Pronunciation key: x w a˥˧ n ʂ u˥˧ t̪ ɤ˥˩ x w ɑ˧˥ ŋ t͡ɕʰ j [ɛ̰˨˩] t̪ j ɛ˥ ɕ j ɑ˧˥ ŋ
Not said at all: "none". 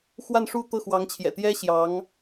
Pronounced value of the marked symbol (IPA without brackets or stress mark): ɛ̰˨˩